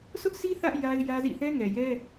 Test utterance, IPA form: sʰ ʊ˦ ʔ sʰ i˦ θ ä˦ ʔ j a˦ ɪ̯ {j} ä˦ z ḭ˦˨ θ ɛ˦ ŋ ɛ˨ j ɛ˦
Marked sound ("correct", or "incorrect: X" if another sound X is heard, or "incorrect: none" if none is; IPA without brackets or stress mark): correct